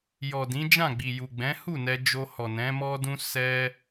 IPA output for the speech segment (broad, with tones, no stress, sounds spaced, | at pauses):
j ɔ˨ d ĩ˨˦ d͡ʒ ã˦˨ ɡ͡b i˨ j u˨ ɡ͡b ɛ̃˨˦ h u˦˨ n ɛ˧ d͡ʒ o˧ h ɔ˨ n ɛ̃˨˦ m ɔ˦ d ũ˦ s ɛ˦